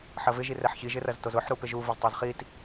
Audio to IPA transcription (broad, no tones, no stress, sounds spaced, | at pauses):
ħ ɐ v ɪ ʒ i r ɛ ħ ç i ʒ ɪ r ɐ z t o z ʊ ħ ɾ u p ɪ ʒ u v ɐ z tˤ o z χ i t